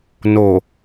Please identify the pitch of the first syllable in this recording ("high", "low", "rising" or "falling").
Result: low